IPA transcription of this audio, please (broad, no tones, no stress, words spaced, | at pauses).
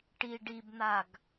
ʈi ɖibn̪aɡ